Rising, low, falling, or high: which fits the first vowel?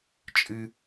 high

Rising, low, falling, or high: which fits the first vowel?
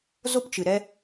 high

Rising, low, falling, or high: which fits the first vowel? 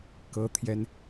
high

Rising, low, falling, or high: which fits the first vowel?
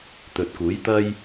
low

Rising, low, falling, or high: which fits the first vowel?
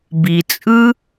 low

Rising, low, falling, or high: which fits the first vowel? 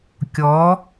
rising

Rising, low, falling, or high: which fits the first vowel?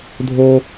low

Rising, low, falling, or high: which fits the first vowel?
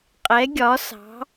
rising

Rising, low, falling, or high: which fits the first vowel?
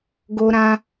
high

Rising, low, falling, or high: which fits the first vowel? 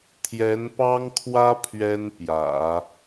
rising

